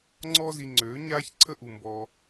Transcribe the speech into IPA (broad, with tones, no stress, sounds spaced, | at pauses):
ŋ͡ǀ ɔː˦ z i˧ ŋ͡ǀ øː˨˦ ɲ aː˦ ç ǀʰ ə˦ ʔ u˨ m b ɔː˧